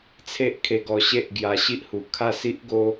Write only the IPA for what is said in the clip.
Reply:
t͡sʰe˦ʔkʰe˧ɡɔ˧ɕe˦ʔ ɡja˧ɕi˦ʔhu˨˩ kʰa˥˧si˦ʔɡo˦

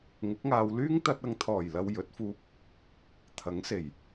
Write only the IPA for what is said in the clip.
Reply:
ŋʊ˨˥k̚ŋaː˧w lyː˥ŋt̪ɐ˧t̚ ɐ˨˧ŋt̪ʰɔː˨˩jlɐ˨w jɵ˨˥t̚fuː˧p̚ | t̪ʰɐ˨˥ŋ se˨˩j

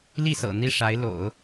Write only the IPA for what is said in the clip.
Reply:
li˥˩sɤ̰˨˩ n̪i˥˩ʂa˧˥ɪ̯ lo̰˨˩˦ʊ̯

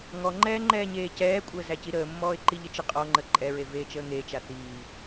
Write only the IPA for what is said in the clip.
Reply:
ŋɔŋ͡ǃɛːŋ͡ǃɛːɲeː cɛːkʷʼəːzæci ɾəːmːɔːɪ̯ ǃiʎət͡ʃə qʼɔŋ͡ǃə ǃʼɛɹe veːt͡ʃəːŋet͡ʃa θiː

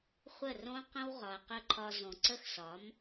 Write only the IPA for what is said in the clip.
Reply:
χʷə˦˨rõ˦qə̃˦w ʁɒ˨ɐ̯qə˦˨ǃʰɒ˧ zõ˨ǀə˦˨xsɒ˨˦m

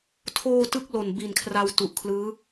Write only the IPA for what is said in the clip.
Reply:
tʰoː˧ tɯ˥˩k̚lo˨˩n bi˨˩nkʰra˧w tu˨˩ʔkʰlɯː˦˥

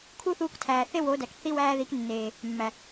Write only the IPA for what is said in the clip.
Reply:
kʰu˦θuː˧ktʰæː˨ θe˦wo˨˦dæ˨k θi˧ wæː˧ði˨˦knːeː˨ | mːæ˨

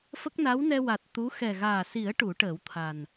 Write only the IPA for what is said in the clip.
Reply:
fə˦˥k̚na˧˥wnɛ˧ wa˨˩t̚ t̪u˧˥ xɛ˨˩ɣaː˨˩si˨˩˦ə̯ ʈu˨˩˦ʈəː˨˩˦wt̪ʰa˨˩n

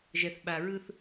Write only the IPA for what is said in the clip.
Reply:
ʒɛ˨θɓa˨ɹɯ˦θ

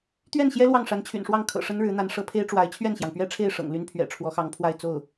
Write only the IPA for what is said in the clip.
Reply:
t̪ɥɛ˥˩nɕjɛ˥ lwɑ˥˩ŋʂa˧˥nt͡ɕʰy̰˨˩nʂwɑ˥˩ŋ kʰɤ̰˨˩ʂə˥nɻɻ̩˧˥n̪a˧˥n ʂɤ˧˥pʰe˥ɪ̯ʈ͡ʂwa˧˥ɪ̯ t͡ɕʰɥɛ˥˩nɕjɑ˩ŋpɥɛ˥ʈ͡ʂʰe˥˩ɪ̯ ʂɤ̰˨˩ŋly˥npʰɥɛ̰˨˩ ʈ͡ʂʰwɔ˧˥xɑ˧˥ŋpʰwa˥˧ɪ̯ t͡so˥˩ʊ̯

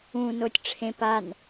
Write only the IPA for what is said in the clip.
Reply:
ũ notʲʈ͡ʂʰẽ pan

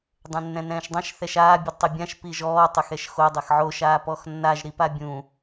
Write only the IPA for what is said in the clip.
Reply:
dˤɛ̃nːɛ̃nɛ̃ːʃdˤãʃ θɛʃaː bʲʊdtˤebʲãʃ piʒɔː tˤɪxɛʃxo dˤɛxʕo ʃaːpɔxnːaʒ ɾipabʲũ

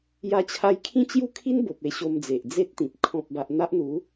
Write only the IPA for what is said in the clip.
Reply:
ja˧t͡ɕʰa˧j kʰĩ˦t͡ɕju˥˧kʰi˦n bo˨p̚e˧ ɕo˧md͡ze˨ʔ d͡ze˦t̚t̪ĩ˨p̚ kʰɔ̃˨p̚ba˨ʔ n̪a˦ʔn̪u˨˦

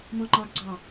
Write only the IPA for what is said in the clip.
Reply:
mɔ̃ŋ͡ǃɑɡ ɡ͡ǀɑ

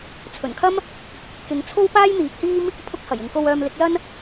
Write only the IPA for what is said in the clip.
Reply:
t͡sʰɵ˨˩nkʰɐ˥m | kɪ˨˧ŋt͡sʰo˥w paː˥jn̪iː˨˥p̚hiː˥m | pʰʊ˥k̚hɐ˨˩j ɪ˨ŋko˧w œː˧mlɪ˨˥k̚lɐ˥n

